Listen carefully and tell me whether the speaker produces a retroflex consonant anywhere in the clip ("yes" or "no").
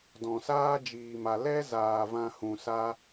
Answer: no